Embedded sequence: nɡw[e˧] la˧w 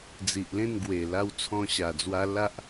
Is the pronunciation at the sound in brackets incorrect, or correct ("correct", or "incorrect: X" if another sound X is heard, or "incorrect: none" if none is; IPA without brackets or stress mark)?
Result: incorrect: e˨˩